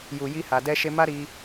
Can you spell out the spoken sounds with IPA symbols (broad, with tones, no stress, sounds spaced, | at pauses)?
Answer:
j u˨ j i˧ h a˨ d ɛ˧ ʃ e˧ m a˦ ɾ i˧